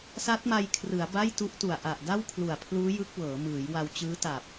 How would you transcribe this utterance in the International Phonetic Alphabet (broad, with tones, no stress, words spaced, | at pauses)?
sa˦˥t̚ma˧jkʰrɯ˩˦a̯ ba˥˩jtu˦˥ʔtu˨˩a̯ ʔa˨˩ʔda˥˩wkʰlu˨˩a̯pʰluː˦˥ jɯ˦˥k̚wɤː˩˦mɯː˩˦j wa˧wt͡ɕɯː˦˥ta˨˩p̚